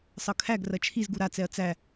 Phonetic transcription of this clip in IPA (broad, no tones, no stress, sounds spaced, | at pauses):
sˤ ɤ kʰ æ ɡ r ɐ t͡ʃʰ i z ɡ u ɾ a t͡s ɛ ɐ̯ t͡s æ